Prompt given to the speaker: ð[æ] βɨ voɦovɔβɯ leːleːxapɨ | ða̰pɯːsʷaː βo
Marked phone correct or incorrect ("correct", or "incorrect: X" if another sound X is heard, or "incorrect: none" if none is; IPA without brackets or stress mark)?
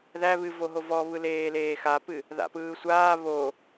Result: correct